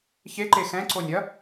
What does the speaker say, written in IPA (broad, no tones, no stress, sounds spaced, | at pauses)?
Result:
ç e ǃ e x ɛ̃ ǀ o nʲ ɐ